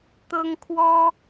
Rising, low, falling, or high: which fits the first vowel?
high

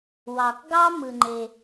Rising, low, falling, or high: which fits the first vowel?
low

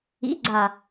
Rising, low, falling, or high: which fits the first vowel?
rising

